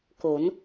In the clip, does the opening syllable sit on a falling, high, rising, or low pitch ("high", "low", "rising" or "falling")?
rising